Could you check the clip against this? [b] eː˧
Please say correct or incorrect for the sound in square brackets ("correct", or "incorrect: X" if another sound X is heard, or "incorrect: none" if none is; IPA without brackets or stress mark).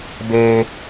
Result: correct